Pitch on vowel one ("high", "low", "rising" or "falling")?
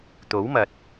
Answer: rising